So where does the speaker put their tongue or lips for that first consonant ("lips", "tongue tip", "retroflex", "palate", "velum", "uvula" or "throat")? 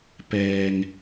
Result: lips